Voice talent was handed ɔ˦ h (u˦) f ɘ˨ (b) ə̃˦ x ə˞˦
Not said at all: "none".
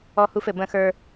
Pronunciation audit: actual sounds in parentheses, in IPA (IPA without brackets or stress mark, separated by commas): u˦, b